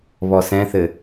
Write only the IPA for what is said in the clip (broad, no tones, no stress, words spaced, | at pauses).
βɔsɛ̃θɘ